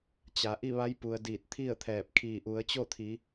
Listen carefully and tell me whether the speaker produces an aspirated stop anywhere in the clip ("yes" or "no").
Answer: yes